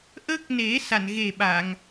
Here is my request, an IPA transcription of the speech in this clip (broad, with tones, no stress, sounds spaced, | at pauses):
ʔ ə˦˥ k̚ n e˨˩˦ s a˨˩˨ n ɣ e˨˩ ɓ a˨˩˨ ŋ